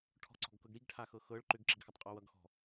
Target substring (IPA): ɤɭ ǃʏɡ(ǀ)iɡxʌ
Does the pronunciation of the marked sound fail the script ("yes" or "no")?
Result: yes